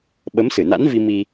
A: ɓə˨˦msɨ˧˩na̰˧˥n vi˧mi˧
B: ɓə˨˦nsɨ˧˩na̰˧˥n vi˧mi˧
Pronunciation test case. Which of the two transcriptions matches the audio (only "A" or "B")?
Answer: A